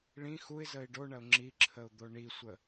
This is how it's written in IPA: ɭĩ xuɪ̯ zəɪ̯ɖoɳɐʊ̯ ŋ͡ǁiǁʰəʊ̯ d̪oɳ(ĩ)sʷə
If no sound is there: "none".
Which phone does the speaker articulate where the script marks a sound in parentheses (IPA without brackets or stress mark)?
i